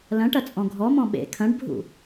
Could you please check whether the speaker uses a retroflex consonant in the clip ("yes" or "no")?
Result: yes